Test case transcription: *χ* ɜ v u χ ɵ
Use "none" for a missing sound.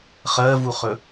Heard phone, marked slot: χ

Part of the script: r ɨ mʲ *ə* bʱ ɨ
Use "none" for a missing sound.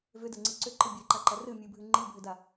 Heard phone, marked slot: ɨ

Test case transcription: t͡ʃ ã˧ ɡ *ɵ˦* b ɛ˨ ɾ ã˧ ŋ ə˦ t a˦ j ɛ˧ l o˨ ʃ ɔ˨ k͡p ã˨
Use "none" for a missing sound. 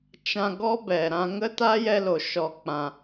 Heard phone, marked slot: ɔ˦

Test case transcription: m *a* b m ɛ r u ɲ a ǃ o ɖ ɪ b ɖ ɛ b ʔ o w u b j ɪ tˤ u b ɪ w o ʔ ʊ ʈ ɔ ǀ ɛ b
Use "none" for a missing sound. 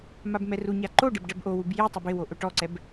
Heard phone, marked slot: a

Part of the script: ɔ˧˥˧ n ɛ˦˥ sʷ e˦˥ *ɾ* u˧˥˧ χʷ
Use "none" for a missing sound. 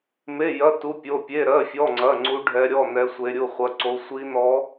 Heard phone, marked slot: ɾʲ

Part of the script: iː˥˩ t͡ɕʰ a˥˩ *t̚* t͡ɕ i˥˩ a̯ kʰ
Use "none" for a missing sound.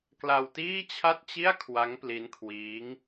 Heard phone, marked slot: t̚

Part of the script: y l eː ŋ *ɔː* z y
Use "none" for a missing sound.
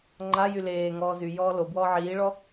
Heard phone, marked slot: ɔː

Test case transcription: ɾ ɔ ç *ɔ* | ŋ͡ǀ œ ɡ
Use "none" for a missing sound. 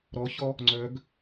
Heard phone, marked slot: ɔ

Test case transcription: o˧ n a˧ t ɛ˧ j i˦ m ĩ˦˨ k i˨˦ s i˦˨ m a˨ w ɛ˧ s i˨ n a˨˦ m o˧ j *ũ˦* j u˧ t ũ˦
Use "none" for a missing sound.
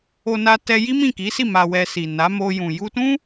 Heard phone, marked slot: ũ˨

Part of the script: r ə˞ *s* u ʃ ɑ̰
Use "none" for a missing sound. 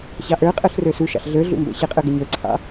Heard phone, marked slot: s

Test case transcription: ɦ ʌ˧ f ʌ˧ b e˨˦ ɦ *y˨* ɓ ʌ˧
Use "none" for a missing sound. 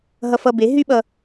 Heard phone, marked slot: y˦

